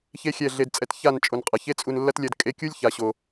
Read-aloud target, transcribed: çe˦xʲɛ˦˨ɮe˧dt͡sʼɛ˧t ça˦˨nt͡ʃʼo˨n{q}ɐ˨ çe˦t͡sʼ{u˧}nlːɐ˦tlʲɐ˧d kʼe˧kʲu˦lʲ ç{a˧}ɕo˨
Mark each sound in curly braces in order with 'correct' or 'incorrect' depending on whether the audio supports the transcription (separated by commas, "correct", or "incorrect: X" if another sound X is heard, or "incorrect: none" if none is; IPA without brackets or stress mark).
incorrect: qʼ, correct, incorrect: a˨